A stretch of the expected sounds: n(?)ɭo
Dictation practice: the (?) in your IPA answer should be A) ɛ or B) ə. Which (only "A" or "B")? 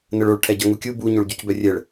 B